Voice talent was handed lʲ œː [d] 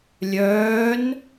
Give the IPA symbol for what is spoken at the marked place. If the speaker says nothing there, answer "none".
n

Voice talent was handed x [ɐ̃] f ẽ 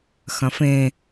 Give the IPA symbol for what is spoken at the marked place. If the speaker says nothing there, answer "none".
ɐ̃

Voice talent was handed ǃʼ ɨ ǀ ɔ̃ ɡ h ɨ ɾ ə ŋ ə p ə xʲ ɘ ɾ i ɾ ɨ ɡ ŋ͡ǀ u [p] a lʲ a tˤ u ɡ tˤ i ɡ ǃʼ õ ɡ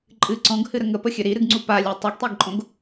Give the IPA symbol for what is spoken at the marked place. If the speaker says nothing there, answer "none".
p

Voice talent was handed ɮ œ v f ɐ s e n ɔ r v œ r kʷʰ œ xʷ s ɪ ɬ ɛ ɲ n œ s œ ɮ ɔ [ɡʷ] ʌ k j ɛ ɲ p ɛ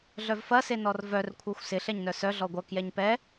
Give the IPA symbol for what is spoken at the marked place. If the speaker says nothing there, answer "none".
ɡʷ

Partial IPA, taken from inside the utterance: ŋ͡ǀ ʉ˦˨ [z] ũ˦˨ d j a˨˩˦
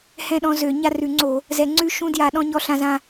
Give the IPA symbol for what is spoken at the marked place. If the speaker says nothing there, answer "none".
ʃ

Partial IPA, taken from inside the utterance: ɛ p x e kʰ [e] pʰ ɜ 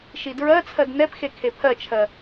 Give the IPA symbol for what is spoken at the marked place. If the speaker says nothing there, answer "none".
e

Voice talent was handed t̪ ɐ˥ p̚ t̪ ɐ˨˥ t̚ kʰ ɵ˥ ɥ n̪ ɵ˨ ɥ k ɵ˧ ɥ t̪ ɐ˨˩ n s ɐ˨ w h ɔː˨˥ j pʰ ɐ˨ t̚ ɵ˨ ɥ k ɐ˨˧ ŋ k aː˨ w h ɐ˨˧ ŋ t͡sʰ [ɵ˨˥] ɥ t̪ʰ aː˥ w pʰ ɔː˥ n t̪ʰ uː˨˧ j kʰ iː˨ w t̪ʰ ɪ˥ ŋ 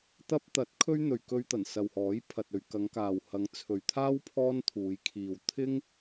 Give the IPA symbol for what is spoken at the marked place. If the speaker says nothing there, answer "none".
ɵ˨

